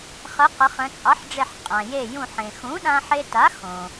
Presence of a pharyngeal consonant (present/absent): present